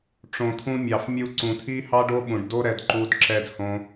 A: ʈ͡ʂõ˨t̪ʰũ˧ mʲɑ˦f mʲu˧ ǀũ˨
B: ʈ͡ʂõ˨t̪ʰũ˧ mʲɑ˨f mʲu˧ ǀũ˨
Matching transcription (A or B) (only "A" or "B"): B